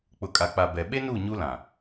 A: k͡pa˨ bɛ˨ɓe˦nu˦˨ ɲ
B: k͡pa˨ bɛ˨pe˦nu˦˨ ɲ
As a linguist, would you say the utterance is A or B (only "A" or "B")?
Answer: A